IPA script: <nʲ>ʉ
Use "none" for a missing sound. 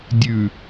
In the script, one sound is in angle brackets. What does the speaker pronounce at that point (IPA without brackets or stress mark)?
dʲ